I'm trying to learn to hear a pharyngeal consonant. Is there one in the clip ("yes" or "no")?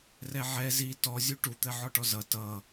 yes